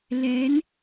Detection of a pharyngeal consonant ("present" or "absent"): absent